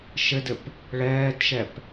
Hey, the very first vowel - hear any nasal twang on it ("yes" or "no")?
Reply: no